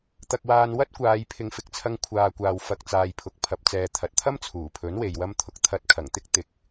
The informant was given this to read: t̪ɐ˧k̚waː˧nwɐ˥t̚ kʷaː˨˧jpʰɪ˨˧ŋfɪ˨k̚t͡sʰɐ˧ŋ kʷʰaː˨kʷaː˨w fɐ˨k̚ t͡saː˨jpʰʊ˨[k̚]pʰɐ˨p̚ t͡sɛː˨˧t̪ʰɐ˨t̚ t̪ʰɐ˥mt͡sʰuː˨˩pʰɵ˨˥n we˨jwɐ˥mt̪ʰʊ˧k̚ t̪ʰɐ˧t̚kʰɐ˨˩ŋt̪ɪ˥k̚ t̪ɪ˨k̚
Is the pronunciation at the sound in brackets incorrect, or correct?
correct